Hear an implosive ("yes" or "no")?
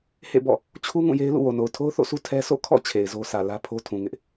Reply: no